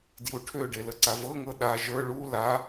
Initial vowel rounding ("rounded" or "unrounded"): rounded